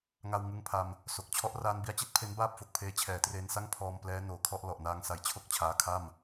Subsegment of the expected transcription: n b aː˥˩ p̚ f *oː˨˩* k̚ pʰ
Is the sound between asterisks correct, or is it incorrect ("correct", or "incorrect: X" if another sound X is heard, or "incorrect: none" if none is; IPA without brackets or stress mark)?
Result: incorrect: o˨˩